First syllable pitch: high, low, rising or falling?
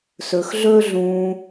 low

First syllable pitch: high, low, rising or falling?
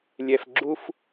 low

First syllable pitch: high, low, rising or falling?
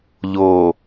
low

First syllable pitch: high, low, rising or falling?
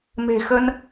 low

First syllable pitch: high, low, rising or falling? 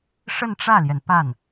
falling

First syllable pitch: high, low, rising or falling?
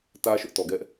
high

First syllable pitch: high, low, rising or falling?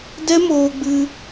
high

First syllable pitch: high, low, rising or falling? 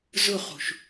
falling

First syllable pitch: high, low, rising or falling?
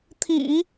low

